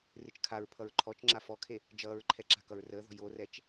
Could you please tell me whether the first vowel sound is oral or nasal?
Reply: oral